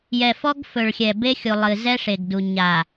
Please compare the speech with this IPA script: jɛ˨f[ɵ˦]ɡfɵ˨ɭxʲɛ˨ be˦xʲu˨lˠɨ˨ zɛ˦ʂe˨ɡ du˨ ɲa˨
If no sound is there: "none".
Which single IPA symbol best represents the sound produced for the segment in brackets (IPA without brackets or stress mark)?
ɔ˦